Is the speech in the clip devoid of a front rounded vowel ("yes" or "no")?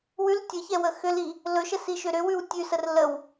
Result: no